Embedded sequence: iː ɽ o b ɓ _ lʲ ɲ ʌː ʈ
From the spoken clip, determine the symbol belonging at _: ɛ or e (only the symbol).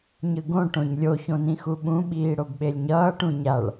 e